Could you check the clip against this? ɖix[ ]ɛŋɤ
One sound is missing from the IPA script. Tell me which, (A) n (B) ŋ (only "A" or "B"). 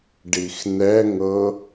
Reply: A